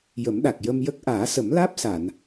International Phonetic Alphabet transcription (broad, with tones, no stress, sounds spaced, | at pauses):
j ə˨˩˦ m ɗ a˨˩ k̚ j ə˧ m j ə˦˥ k̚ ʔ aː˨˩˦ s ə˨˩˦ m l aː˦˥ p̚ s a˨˩˨ n